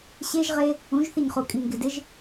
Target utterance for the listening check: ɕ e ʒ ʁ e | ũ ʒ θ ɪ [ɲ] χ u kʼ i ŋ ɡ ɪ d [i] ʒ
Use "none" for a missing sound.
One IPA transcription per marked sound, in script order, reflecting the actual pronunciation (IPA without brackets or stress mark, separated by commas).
ɲ, ɪ